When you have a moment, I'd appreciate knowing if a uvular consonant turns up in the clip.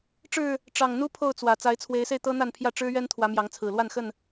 no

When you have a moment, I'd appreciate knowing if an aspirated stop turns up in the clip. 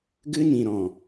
no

